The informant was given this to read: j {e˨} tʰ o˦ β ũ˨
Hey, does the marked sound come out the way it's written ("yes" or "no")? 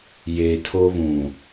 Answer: yes